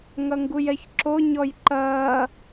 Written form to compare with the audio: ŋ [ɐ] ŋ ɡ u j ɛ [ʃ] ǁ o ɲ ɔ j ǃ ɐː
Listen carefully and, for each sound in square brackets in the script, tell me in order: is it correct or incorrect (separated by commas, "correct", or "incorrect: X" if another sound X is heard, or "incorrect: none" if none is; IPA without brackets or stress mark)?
correct, incorrect: ç